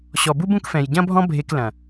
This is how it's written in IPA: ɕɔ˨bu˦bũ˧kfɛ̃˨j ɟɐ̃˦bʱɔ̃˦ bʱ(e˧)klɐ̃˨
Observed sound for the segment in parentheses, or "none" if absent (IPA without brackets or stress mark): e˧